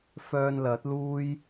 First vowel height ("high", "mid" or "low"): mid